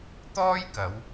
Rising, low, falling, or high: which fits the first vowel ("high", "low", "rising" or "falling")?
high